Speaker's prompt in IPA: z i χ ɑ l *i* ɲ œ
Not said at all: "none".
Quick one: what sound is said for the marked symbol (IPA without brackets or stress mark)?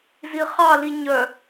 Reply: i